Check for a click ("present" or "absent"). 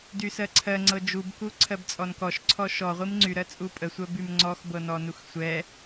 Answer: present